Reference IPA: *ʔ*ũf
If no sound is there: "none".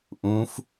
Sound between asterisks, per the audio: ʔ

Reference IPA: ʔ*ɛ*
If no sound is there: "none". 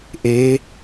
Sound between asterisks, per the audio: e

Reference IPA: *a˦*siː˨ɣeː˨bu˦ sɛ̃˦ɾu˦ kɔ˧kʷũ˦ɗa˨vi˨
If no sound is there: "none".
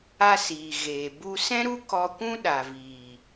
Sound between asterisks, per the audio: a˦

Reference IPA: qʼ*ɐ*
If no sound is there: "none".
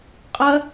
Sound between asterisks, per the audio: ɐ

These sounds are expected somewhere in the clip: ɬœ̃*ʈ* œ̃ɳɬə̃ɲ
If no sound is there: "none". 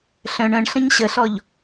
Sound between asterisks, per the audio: ɳ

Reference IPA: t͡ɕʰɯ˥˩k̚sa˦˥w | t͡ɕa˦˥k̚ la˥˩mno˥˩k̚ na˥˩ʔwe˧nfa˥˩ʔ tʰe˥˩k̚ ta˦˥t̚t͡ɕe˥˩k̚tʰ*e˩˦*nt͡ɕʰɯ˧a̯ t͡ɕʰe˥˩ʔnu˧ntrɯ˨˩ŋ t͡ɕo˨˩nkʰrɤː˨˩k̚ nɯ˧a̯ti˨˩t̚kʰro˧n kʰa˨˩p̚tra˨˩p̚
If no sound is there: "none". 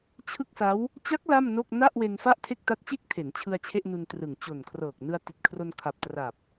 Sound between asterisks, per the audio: e˩˦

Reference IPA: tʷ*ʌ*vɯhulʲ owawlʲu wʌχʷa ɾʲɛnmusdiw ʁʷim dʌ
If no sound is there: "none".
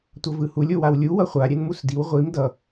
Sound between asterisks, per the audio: ʌ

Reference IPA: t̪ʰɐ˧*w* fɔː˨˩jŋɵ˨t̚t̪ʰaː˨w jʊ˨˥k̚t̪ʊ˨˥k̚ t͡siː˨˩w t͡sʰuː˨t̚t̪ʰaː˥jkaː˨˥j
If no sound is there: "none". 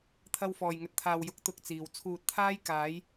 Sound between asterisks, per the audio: w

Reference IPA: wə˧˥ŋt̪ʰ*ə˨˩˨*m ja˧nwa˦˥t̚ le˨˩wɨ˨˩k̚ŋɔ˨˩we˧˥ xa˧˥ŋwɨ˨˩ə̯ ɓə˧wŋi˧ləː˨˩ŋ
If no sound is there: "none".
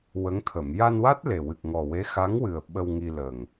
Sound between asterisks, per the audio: ə˨˩˨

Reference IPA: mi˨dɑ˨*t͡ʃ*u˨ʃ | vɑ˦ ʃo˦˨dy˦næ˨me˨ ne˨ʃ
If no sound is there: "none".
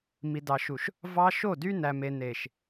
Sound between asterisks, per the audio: ʃ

